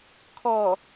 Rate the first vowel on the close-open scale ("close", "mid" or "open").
mid